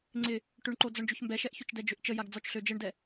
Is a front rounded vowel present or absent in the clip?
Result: present